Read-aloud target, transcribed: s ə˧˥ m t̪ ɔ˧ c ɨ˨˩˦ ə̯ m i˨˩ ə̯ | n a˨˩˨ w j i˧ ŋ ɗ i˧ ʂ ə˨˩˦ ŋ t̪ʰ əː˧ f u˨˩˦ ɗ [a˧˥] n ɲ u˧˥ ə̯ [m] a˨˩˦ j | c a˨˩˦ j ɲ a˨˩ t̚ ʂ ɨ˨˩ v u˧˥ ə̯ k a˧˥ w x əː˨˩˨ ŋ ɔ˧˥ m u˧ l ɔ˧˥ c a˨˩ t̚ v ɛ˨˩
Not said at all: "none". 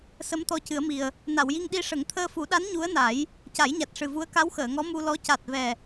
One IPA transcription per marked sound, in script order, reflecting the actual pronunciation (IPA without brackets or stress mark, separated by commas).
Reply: a˧˥, n